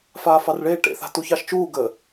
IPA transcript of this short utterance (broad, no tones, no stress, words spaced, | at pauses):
faːfɑrɭeː ʈḛθa̤ tuçɑʃt͡ʃuː ɡə